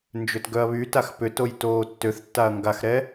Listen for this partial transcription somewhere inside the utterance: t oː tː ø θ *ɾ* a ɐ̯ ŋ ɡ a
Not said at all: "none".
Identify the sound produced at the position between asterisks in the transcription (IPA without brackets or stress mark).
tː